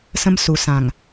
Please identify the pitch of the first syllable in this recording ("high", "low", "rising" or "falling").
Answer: high